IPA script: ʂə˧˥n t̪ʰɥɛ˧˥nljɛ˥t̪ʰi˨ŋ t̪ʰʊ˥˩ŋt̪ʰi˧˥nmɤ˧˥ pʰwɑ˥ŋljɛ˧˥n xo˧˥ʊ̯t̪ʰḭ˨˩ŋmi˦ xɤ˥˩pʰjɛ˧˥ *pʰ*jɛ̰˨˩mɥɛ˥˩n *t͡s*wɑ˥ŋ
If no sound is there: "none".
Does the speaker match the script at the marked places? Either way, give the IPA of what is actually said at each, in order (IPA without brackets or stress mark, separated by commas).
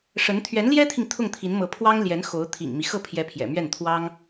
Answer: pʰ, t̪ʰ